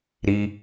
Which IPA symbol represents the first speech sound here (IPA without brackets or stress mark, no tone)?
ɾ